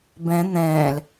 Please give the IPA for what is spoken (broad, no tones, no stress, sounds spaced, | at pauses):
b ɛ̃ n̪ ɛ̃ː l